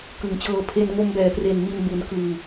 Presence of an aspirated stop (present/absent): present